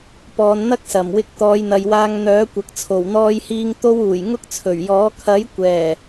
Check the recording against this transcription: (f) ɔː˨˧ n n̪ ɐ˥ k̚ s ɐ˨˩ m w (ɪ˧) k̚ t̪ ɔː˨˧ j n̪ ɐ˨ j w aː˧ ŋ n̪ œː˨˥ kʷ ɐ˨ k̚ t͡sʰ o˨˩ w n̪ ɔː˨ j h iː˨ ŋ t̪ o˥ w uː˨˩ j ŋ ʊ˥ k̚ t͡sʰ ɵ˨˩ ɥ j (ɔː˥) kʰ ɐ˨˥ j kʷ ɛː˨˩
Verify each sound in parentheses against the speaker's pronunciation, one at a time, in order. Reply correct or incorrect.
incorrect, correct, incorrect

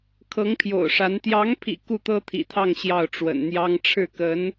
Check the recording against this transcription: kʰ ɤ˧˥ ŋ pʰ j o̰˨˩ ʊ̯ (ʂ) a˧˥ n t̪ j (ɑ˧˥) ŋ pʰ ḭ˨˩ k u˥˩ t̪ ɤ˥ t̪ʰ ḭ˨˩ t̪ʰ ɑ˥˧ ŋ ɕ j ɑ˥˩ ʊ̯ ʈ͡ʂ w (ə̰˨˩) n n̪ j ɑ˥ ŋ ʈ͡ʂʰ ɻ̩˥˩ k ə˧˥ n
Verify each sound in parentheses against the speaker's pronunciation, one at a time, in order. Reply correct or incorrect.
correct, correct, correct

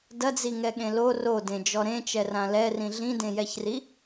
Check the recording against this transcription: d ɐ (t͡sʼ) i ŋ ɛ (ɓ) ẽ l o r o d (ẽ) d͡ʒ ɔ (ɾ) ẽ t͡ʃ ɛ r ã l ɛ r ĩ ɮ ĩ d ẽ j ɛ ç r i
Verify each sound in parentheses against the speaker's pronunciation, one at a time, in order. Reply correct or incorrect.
incorrect, incorrect, correct, correct

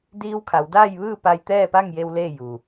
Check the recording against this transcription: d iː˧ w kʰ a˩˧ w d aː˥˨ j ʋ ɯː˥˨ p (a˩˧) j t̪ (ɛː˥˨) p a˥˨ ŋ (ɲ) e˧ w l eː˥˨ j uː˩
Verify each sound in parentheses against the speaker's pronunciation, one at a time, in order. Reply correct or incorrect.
incorrect, correct, incorrect

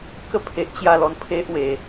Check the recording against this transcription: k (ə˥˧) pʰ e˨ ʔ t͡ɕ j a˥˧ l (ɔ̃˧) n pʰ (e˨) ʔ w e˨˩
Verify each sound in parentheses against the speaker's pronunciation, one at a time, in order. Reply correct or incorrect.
correct, incorrect, incorrect

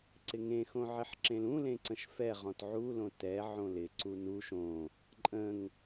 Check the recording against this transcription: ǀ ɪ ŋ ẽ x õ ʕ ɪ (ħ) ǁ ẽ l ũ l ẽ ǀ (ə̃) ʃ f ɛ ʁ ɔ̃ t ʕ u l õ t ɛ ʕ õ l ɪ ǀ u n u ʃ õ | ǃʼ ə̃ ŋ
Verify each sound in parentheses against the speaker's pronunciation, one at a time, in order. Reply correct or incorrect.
correct, correct

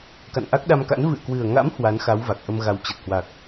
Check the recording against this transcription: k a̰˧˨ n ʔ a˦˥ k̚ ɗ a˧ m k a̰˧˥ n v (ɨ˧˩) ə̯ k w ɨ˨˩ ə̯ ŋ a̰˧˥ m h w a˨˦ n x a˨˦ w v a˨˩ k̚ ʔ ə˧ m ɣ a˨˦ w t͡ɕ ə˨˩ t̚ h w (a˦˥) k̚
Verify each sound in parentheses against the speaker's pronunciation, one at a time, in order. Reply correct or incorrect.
incorrect, incorrect

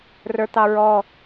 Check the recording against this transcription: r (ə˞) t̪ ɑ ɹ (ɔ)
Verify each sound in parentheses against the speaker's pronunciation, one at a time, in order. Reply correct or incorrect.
correct, correct

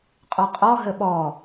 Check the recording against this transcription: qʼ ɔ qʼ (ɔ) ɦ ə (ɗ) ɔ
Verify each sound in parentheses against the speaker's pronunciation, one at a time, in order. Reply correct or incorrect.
correct, incorrect

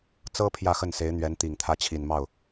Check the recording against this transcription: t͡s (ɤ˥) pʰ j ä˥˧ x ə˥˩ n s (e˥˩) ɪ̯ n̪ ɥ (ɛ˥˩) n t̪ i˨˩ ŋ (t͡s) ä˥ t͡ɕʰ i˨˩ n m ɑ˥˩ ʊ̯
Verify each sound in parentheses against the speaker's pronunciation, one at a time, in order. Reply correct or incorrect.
correct, incorrect, incorrect, incorrect

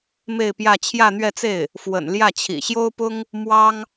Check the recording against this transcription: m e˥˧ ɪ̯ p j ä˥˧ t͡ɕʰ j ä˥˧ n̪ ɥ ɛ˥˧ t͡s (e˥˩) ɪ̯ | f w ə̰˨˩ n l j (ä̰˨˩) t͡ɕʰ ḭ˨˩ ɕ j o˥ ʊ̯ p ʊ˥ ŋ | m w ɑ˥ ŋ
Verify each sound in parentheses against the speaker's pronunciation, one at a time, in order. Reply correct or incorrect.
correct, incorrect

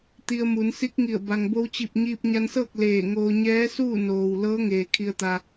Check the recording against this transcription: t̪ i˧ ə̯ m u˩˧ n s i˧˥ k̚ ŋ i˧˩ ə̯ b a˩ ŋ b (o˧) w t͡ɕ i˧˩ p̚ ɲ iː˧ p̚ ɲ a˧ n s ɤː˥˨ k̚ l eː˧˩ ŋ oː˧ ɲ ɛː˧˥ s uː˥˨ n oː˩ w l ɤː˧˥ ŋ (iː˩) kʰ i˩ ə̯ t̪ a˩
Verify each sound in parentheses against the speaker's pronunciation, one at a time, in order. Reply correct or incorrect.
correct, incorrect

